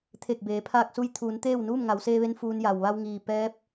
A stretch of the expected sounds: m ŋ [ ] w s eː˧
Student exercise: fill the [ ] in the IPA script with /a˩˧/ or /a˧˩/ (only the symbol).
a˩˧